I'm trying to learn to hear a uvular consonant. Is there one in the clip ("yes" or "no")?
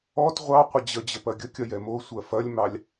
yes